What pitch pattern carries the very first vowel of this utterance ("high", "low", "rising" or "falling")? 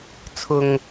low